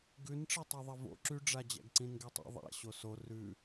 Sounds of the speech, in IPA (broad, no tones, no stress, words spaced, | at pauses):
ɡʉnʈ͡ʂe tˤyðˤɛvo̰ ǁyɖ͡ʐa d͡ʑæ̰ɡǀĩnɡetˤḭ ðˤæ̰ ɕoso rʉ